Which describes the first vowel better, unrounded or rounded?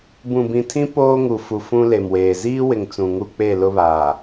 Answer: rounded